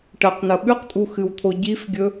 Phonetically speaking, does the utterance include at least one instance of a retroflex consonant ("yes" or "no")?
yes